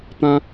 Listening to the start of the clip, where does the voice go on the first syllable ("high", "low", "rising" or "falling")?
high